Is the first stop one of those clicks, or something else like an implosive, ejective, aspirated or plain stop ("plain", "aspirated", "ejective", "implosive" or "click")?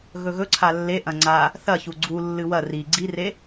click